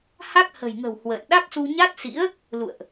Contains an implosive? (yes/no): yes